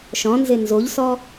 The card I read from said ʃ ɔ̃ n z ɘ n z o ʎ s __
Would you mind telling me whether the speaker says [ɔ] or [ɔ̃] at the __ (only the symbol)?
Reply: ɔ